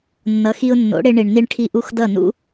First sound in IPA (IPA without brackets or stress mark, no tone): nː